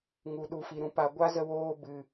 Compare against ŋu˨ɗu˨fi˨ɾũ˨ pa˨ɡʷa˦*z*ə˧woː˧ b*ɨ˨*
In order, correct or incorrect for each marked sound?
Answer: correct, correct

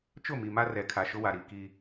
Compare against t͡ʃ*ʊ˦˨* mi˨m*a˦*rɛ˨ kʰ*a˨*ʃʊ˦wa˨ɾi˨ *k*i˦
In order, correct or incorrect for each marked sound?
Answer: correct, correct, correct, correct

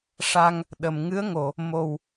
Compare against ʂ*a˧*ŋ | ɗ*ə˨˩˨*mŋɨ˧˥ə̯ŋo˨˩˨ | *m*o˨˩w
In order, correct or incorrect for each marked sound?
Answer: correct, correct, correct

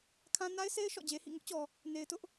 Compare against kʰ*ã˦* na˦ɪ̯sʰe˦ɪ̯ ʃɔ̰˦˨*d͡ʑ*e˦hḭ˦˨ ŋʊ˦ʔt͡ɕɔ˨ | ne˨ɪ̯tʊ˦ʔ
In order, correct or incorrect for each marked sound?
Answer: correct, correct

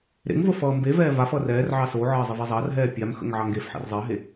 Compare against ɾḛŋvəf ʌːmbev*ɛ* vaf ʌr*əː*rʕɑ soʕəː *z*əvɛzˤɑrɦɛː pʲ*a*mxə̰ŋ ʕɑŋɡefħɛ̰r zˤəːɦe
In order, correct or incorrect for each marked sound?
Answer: incorrect: ɛː, incorrect: ɛː, incorrect: zˤ, correct

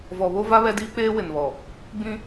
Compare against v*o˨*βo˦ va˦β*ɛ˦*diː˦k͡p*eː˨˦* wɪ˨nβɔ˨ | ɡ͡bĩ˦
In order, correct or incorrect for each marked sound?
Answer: incorrect: ɔ˨, correct, incorrect: eː˦

